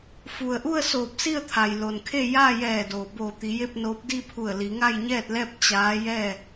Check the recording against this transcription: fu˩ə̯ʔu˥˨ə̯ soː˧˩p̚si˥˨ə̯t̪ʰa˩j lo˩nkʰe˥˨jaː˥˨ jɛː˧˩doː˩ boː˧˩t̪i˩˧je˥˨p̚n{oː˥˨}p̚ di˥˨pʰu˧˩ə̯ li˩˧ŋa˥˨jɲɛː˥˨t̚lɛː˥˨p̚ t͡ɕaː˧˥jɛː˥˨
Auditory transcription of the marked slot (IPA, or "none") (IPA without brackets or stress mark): oː˧˥